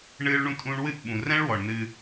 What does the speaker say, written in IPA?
ɳɨː˦ɭɳũ˦tʼũː˦ɳ wɨ˦˨ʔɓũ˨rɛ̃˦ɭwɔ˨ɳ nɨː˦

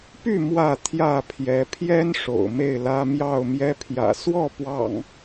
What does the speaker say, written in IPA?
py˥˨ mwä˥˨ t̪ʰjä˥˨pʰjɛ˨˦ pʰjɛ˦n ʂo̰˨˩ʊ̯me˥˨ɪ̯lä˦ mjɑ˥˨ʊ̯mjɛ˦pʰjä̰˨˩ swɔ˥˨pwɑ̰˨˩ŋ

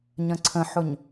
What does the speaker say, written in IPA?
ɲə̃ǀʰə̃ħʊɲ

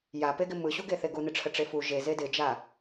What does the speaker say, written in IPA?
japeɡɪ mɯɕuɡeθe ɡunɪʈ͡ʂʰə ʈ͡ʂefu ʒe zedɪd͡ʒa

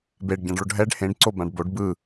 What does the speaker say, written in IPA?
beɖɟãɖɭoɖ ɦɛɖ hẽɖǀobãɖ boɖ bɯ

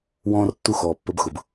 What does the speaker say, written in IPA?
wɔ̃ː˦rtːu˦ xɔː˨pːə˧bxʊ˨b

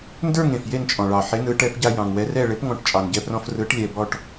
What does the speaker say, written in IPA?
ndə˞˥˩ŋ ẽ˩fje˥˩nt͡ʃʼɔ̃˩ ɭɑ˩ħe˩˥nɯ˩˥ ʈɛ˩˥pɟa˧ jɑ̃˩ŋwɛ˩˥rɛ˥˩ ɭe˩˥pŋɔ̃˩˥ʈ t͡ʃʼɑ˩nɟɛ˧prɔ̃˧f rɯ˩˥ʈ lʲɛ˧ bɔ˧ʈ

